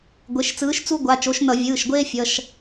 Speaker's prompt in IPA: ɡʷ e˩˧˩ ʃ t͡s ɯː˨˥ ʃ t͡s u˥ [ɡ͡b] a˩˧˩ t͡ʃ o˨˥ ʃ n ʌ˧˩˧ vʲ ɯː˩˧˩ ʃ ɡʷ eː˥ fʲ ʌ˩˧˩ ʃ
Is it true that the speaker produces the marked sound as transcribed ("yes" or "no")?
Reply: no